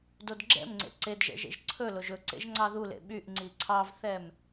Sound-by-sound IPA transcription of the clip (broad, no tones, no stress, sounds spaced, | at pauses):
d o d ɡ͡ǁ ɛ̰ m ŋ͡ǀ ḛ ǀ e d ʒ ɛ̰ ʒ ḛ ʒ ǀʰ ɵ l o ʒ ɵ ǀ ḛ ʒ ŋ͡ǀ ɑ ð u l ḛ ɓ y ʔ ŋ͡ǀ i ǀʰ ɑ v θ ɛ m